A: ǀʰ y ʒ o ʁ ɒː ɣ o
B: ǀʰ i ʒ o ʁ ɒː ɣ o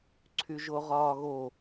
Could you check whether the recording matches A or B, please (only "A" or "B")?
A